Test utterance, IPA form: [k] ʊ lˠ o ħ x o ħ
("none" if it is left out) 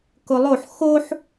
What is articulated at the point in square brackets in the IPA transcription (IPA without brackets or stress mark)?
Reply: k